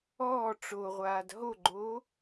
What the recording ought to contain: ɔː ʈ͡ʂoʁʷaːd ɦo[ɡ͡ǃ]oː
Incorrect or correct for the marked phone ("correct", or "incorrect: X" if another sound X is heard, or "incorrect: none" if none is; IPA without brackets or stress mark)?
correct